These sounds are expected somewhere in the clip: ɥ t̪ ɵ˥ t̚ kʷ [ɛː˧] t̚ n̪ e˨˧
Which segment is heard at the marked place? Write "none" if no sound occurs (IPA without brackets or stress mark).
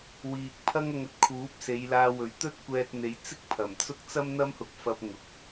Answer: ɛː˧